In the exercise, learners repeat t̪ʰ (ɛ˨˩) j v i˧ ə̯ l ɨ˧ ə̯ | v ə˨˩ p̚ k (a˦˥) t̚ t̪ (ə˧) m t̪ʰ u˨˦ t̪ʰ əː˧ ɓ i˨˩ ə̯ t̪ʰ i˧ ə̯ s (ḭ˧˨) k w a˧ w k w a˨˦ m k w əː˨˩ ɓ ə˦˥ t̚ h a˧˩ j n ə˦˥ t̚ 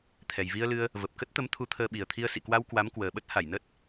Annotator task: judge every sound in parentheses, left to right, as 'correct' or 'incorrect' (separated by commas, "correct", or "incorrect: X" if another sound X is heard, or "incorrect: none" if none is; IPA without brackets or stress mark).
correct, incorrect: ə˦˥, incorrect: ə˨˦, correct